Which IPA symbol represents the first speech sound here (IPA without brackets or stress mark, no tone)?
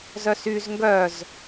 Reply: z